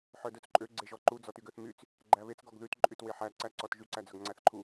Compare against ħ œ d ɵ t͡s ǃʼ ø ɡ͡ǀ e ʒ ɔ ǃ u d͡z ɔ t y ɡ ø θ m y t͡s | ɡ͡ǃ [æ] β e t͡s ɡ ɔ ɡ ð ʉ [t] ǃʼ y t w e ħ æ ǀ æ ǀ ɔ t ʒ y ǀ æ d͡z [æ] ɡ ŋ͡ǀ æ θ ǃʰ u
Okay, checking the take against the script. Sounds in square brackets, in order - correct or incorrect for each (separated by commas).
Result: correct, correct, incorrect